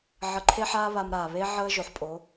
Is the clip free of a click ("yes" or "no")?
no